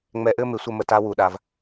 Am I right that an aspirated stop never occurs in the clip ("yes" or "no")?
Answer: yes